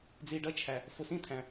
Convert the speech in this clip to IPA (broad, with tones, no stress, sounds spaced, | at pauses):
d͡z i˨ ɖ ʌ˦˨ t͡ʃʰ æ˨ | f ʊ˨ s ĩ˦˨ t̪ʰ æ̃˨